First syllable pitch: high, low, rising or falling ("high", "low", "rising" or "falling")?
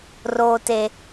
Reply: low